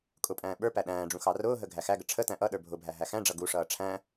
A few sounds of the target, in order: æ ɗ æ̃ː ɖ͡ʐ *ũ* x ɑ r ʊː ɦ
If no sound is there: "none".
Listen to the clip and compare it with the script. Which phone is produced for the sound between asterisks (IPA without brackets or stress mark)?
ũ